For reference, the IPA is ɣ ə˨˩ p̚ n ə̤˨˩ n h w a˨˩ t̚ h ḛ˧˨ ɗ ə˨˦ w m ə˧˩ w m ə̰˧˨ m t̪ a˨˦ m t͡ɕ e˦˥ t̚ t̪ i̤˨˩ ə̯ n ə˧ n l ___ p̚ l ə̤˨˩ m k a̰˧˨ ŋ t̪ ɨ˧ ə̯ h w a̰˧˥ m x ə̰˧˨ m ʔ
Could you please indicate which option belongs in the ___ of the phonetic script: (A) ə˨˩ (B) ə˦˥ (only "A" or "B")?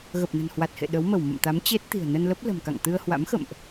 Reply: B